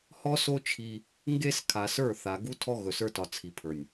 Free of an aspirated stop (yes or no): no